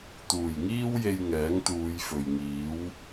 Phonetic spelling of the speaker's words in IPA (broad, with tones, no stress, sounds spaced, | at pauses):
t̪ uː˨˩ j ŋ iː˥ w j e˧ j ŋ ɛː˨˥ ŋ t̪ uː˨˧ j f ɵ˨ ɥ ŋ iː˨˥ w